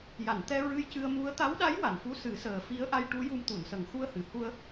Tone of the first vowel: low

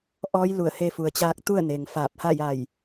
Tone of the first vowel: rising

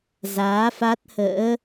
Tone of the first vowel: rising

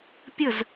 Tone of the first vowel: falling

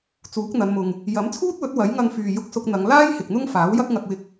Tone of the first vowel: rising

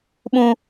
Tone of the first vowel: low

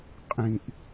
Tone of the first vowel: low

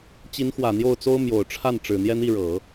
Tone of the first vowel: rising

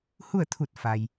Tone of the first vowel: falling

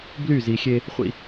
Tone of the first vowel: falling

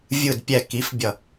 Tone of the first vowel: low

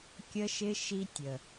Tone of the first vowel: high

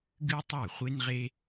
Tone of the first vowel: high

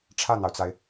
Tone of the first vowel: falling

